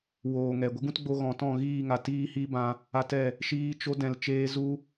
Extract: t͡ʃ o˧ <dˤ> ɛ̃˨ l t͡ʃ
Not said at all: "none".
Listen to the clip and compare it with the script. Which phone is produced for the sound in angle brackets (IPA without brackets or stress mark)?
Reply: d